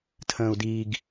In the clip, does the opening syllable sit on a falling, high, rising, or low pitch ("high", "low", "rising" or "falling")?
low